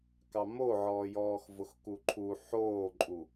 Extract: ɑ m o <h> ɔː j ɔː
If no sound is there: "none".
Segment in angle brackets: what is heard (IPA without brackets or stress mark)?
ʕ